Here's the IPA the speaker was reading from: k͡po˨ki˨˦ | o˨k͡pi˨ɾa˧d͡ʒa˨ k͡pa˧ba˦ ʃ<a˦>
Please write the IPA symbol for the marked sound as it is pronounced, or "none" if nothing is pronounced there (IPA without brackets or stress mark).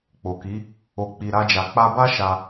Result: a˧